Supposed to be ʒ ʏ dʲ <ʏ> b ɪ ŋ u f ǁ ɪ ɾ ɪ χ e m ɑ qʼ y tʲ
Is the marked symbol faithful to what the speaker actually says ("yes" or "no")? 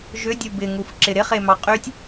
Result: no